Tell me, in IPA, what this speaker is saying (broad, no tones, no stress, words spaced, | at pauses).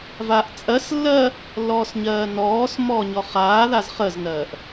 vaːʔt͡sʼɜslːɜ | lːɔːsɲɜːnɔːsmɔː ɲɔχaːðaz χəznɜːʔ